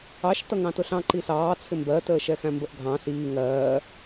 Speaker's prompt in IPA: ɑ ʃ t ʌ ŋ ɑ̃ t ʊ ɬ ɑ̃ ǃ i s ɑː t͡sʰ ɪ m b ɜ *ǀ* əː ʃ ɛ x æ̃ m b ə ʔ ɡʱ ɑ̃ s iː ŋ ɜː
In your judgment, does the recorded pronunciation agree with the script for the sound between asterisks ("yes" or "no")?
no